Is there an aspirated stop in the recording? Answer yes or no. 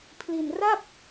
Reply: yes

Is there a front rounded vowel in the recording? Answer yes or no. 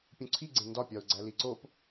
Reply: no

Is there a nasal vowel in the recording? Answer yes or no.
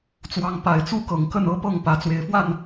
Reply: no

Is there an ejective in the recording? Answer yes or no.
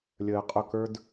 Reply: yes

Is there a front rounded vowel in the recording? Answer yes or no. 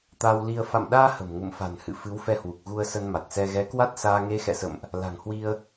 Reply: no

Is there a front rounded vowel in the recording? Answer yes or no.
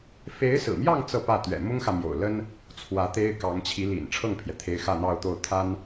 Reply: no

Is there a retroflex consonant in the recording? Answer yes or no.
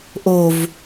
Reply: no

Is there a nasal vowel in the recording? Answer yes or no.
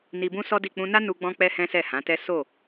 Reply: yes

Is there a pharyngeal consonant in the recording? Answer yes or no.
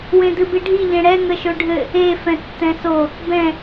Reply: no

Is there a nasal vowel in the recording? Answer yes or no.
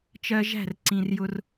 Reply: yes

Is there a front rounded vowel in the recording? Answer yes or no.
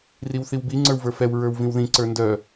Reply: yes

